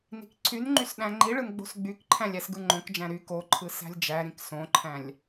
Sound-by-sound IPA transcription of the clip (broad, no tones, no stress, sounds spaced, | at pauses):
n i̤ k ǀʰ y n ŋ͡ǃ y s ɗ æ̃ ŋ͡ǃ i ɭ ɯ n ɡ͡b o̤ s ɡ͡b y k ǃʰ æ̃ lʲ æ s ɡ ɯ ŋ͡ǃ õ k d͡ʒ æ̃ ɾ y k o ǃʰ ɯ s æ̤ lʲ d͡ʒ æ ɾ ĩ k s õ ǃʰ æ̃ lʲ